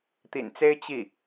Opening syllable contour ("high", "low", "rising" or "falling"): low